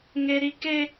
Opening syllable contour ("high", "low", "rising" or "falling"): high